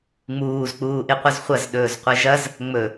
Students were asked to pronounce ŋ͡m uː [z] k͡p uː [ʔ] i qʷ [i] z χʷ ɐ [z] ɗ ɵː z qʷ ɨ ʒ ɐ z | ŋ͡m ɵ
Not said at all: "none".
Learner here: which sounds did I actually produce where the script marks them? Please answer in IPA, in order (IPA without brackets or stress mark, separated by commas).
z, ʔ, ɨ, z